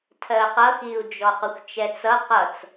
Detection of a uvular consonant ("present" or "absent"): present